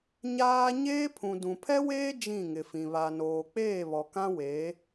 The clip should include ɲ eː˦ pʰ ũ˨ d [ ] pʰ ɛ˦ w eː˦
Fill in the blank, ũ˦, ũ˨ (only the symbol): ũ˨